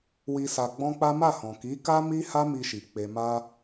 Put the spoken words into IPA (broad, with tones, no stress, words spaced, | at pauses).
wi˧sa˧ɡ͡bɔ̃˦k͡pa˦ ma˦˨hɔ̃˨ki˨˦ ka˦mi˦ ha˦mi˧ʃi˨ k͡pe˨ma˧